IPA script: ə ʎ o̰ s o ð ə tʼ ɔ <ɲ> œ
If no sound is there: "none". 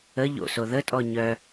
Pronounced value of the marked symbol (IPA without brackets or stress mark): ɲ